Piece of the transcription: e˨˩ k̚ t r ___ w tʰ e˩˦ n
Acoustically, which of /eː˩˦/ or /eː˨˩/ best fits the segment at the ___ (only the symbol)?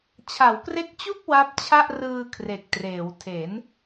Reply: eː˩˦